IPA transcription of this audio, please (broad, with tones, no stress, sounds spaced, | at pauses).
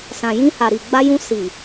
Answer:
s ã˨ j ĩ˧ h a˨ ɾ i˨ ɡ͡b a˧ j ũ˧ s i˨